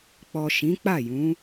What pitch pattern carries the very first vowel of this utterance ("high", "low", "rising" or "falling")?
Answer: low